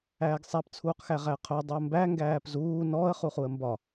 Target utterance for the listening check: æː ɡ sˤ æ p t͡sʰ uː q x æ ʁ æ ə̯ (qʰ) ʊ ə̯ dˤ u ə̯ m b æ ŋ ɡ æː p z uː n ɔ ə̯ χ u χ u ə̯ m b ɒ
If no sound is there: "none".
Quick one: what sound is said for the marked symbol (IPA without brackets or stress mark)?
qʰ